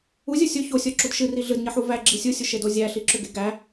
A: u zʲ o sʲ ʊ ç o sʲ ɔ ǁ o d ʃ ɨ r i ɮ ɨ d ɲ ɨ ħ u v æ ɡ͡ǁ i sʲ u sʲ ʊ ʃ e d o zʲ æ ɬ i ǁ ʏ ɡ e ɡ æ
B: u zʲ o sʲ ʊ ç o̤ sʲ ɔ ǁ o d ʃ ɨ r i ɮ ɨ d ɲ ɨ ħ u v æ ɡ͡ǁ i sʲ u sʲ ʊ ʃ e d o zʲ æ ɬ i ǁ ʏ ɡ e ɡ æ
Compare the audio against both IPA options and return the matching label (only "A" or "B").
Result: A